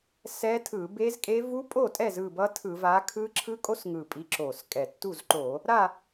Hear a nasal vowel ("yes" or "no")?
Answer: no